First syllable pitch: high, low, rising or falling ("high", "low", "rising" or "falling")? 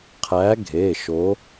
rising